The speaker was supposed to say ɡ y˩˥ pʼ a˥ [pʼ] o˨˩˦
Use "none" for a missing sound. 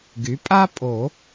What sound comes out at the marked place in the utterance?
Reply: pʼ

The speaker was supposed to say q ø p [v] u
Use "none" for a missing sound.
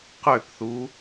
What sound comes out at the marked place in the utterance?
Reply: θ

